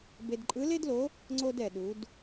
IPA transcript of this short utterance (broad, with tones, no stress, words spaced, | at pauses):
be˧dǃʼɯ˧˥le˥dlo˧˥ | ŋ͡ǀo˥dɛ˧ɗu˧˥d